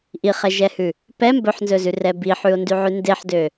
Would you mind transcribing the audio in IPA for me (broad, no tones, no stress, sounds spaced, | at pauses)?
ʔ i χ ɛ ʒ ɛ h ʉ | p ɛ m b ɵ ħ n z ɵ z ʉ r ɛ b i ħ ʉ o̯ n d y ʕ ʉ n d e ħ d ø